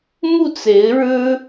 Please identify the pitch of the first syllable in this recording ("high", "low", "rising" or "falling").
falling